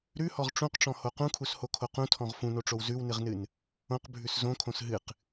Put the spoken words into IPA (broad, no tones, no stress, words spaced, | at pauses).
ɾʉhɔʁ ʈ͡ʂũqʈ͡ʂɔ̃ho qũkʰushokʰo qũtʰɔ̃ʁ fũnoʈ͡ʂow zʉwnɨʁnɨn | õqbʱʉs zõkʰõs ɦɨq